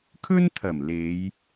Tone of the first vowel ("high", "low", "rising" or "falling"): high